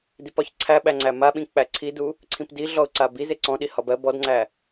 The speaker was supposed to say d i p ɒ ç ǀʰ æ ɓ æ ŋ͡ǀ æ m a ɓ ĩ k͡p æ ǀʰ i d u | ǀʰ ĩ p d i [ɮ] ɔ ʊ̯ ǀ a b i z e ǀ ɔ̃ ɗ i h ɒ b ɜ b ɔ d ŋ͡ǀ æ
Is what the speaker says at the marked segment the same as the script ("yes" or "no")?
yes